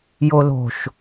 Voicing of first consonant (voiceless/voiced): voiced